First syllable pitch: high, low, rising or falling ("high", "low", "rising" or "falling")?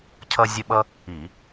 high